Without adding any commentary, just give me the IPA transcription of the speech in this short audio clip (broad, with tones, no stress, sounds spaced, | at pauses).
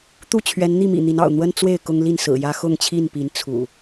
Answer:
t̪ u˥˨ t͡ɕʰ ɥ ɛ˨˦ n n̪ i˥˨ m ḭ˨˩ n̪ i˨˦ n ɑ̰˨˩ ʊ̯ n̪ w ə˦ n t͡s w e˥˨ ɪ̯ k ʊ˦ ŋ l i˥˨ n s ɹ̩˨˩ j ä˦ x ʊ˥˨ ŋ t͡ɕʰ i˥˨ n p i˨˦ n t͡sʰ ṵ˨˩